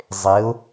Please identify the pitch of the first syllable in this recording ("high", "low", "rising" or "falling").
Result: rising